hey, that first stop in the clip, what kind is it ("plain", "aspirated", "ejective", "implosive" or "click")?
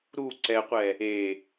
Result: click